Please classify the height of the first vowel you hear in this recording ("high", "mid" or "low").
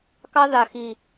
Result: low